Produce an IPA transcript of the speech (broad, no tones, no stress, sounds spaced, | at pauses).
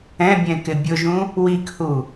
ɛ̃ bʲ ɛ̃ k ɪ bʲ ʊ ʒ ũ | w i k h u